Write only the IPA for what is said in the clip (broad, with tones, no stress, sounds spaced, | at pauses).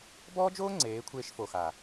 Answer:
b ɔː˦ d͡ʒ oː˦ ŋ͡ǀ eː˨˦ kʷʰ eː˧ ʃ f o˨ x a˨